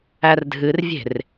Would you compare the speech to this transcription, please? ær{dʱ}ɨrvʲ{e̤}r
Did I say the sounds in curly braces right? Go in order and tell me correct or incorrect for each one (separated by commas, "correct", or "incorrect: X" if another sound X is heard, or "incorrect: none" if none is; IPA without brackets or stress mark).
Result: correct, correct